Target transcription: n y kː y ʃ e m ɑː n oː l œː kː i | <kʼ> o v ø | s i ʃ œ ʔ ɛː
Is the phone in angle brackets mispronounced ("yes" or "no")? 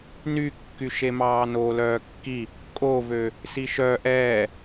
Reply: no